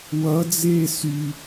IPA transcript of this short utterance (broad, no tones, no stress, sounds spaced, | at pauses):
w ʌ d͡z eː s y